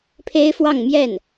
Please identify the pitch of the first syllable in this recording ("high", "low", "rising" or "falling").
high